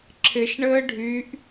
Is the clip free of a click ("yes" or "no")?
no